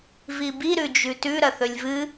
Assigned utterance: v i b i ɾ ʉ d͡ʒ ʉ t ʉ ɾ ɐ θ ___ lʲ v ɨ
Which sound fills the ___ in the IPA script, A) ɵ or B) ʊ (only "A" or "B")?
A